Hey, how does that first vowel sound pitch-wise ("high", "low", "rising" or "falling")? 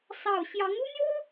falling